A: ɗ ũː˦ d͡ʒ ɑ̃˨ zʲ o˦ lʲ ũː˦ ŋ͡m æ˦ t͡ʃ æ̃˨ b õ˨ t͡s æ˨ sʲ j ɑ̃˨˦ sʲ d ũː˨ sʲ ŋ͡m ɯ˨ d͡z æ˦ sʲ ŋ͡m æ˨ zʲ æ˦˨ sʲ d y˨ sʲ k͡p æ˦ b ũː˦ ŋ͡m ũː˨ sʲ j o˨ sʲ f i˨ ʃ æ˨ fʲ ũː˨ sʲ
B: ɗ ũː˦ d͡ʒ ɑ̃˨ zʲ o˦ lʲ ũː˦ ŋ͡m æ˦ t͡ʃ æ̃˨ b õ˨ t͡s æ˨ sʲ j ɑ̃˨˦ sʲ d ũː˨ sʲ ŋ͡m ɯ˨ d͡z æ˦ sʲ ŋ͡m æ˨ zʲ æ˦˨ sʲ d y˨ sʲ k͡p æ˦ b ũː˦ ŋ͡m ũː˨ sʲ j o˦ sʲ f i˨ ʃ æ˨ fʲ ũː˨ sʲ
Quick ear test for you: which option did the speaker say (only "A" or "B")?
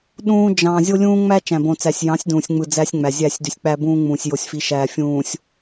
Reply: A